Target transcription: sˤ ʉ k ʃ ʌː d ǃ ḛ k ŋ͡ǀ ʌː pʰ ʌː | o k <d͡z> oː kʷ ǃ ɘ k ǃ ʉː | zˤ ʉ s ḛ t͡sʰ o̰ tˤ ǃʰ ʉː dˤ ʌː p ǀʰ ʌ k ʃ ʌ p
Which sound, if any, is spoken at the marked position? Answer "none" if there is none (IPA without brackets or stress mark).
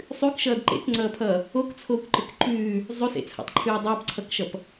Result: t͡sʰ